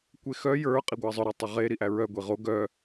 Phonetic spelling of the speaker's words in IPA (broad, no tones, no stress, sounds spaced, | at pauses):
kʷ e x œ j ə˞ qʼ i ɡʷ æ zˤ œ ɾ e tˤ ə ʁ e ɾ i ʔ æ ɹ œ ɡʷ i ʁ o ɡ œ